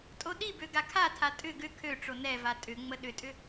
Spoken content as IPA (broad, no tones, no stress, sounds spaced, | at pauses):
tʼ o ɗ i b ø ɡ a kʰ a tʰ a tʼ ʏ ɡ ʏ kʰ ø ʈ͡ʂ o n ɛ v a tʼ ʏ ŋ͡m ə ɗ ʏ tʼ ʏ